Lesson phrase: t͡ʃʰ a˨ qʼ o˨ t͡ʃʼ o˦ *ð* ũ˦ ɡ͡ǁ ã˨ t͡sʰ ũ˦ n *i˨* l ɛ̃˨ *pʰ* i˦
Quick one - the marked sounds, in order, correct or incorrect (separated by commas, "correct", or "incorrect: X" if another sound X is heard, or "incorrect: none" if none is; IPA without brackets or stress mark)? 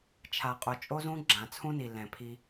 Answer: incorrect: z, correct, correct